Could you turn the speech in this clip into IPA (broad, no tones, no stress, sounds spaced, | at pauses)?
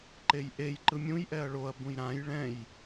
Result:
ǃ e j ʔ e j ǃ ɯ mʲ ũ j ʔ ɛ ɐ̯ ɭ o ɐ̯ b ũ j ɾ ã j ɭ ɛ̃ j